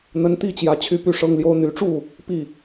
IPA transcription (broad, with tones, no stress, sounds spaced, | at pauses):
n̪ ə˨˦ n t̪ i˥˨ t͡ɕ j ä˨˦ t͡ɕʰ y˥˨ p y˥˨ ʂ ɤ˦ ŋ l j o˦ ʊ̯ n̪ y˨˦ ʈ͡ʂ u˥˨ | p i˥˨